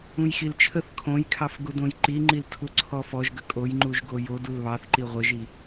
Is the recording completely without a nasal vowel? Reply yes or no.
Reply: no